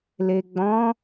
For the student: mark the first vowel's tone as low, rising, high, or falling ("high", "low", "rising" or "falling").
low